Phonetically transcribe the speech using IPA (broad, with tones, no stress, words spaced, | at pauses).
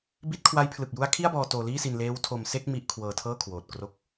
bi˦˥t̚kʰwa˦˥jpʰlɯ˨˩k̚ju˦˥a̯ kʰi˥˩a̯bɔː˧ toː˧liː˥˩si˧n leː˦˥wtʰo˧mse˥˩k̚ mi˥˩ʔ kʰwɤː˧tʰɤː˥˩kʰwoː˨˩t̚ kro˥˩k̚